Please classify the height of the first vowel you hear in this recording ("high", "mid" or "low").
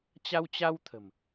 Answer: low